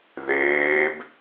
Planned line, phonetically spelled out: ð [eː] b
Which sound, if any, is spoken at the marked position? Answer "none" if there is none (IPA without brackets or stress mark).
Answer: eː